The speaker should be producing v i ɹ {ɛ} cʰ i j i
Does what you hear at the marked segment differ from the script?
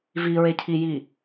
yes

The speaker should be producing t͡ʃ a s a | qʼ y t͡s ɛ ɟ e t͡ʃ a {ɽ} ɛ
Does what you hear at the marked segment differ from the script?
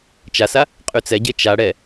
no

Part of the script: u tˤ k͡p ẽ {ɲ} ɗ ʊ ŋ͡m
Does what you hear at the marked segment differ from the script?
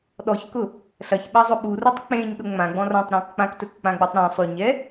no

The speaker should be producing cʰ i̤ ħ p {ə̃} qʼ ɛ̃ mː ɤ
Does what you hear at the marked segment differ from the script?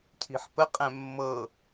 yes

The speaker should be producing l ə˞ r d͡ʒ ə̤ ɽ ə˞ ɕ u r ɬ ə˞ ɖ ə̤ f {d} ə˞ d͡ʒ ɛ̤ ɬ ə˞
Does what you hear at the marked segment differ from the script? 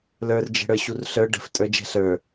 yes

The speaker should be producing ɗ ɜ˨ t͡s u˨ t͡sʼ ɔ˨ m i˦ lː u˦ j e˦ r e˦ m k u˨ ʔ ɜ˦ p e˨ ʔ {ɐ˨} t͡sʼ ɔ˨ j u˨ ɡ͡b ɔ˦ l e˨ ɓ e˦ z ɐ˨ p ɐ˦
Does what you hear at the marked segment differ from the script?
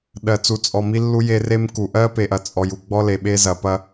no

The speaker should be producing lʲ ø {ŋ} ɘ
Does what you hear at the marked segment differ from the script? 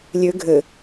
yes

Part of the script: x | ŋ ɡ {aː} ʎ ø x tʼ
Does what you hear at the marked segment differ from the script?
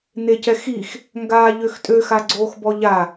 no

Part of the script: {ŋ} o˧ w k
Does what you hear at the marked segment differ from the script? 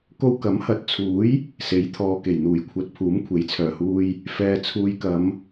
yes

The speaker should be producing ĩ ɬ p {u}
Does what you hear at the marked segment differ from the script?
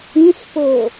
yes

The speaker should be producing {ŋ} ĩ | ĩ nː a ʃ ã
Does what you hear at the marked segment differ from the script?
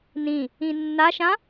yes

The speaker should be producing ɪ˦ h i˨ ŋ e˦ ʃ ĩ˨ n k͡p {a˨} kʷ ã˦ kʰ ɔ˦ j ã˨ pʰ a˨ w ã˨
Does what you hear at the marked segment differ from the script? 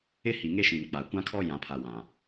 no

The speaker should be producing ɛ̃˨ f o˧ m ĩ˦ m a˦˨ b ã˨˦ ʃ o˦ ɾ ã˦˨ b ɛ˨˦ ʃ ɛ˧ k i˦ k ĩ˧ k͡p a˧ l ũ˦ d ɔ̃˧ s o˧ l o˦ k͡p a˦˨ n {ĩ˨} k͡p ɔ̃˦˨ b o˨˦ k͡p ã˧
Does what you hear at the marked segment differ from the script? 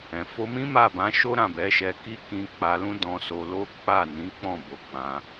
yes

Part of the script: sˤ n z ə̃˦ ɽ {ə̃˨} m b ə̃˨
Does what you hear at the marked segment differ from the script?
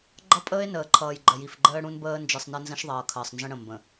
no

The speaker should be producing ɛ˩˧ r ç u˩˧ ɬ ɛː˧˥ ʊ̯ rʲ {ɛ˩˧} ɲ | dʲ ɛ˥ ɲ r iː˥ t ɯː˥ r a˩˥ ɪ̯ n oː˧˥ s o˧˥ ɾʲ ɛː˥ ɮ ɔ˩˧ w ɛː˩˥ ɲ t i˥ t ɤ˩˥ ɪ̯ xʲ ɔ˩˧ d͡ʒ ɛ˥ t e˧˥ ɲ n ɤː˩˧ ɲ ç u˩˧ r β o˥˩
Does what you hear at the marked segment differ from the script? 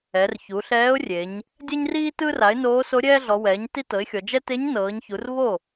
yes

